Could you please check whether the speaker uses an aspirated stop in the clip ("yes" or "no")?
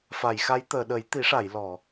no